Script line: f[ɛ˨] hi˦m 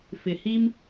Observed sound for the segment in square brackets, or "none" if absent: ɪ˨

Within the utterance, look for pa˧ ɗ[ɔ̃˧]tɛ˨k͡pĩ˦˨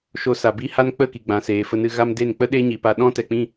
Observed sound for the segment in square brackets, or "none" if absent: ɔ̃˦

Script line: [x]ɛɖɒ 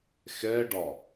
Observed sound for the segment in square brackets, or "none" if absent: x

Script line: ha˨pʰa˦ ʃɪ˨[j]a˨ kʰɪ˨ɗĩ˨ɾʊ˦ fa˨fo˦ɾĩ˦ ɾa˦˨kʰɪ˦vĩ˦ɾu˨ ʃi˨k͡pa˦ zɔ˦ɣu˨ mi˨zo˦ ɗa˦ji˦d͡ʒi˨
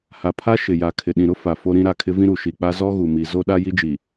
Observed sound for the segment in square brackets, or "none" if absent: j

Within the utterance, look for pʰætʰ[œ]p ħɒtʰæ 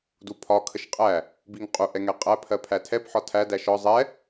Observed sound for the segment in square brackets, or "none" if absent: ɛ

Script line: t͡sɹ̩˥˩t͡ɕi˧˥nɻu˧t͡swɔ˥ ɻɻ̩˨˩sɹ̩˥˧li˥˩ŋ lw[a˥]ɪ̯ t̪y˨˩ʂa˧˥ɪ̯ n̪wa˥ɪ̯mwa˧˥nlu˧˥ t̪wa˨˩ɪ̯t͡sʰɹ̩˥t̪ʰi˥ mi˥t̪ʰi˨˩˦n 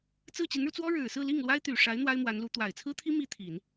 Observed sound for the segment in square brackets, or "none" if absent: a˥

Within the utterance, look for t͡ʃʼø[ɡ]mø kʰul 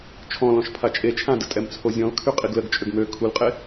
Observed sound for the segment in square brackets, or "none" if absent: ɡ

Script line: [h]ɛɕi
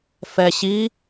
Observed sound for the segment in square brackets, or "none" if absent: f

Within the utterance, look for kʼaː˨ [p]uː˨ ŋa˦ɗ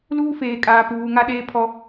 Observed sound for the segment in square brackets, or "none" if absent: p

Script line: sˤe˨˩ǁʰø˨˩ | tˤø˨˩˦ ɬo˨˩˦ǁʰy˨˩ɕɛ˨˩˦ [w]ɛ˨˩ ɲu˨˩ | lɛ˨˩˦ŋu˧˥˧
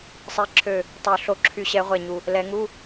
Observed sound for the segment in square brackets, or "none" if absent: ʁʷ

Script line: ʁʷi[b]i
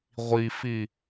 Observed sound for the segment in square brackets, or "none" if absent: f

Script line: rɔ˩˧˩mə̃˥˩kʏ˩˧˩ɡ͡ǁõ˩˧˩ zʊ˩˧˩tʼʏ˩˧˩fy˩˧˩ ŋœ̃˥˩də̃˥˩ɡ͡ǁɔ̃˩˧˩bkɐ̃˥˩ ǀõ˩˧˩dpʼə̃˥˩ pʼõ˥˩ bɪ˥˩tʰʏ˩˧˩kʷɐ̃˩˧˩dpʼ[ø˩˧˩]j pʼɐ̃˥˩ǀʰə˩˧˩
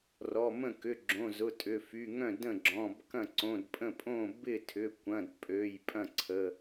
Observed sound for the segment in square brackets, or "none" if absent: ø˩˧˩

